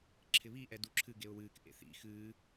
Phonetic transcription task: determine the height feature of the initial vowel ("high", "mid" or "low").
high